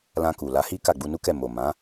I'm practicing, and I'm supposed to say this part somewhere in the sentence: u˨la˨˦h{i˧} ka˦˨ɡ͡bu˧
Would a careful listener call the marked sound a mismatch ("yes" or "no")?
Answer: yes